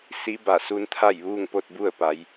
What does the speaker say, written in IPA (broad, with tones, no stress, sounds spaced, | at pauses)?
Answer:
s i˧˥ b a˧˩ s u˧ n t̪ʰ a˥˨ j ʋ uː˥˨ ŋ p o˥˨ t̚ b u˥˨ ə̯ p a˩˧ j